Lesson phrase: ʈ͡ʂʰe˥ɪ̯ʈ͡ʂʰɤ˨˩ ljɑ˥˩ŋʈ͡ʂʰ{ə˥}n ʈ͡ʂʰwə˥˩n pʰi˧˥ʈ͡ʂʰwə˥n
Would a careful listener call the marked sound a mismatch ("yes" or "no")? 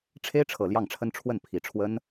no